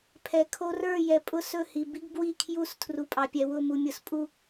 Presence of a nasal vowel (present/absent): absent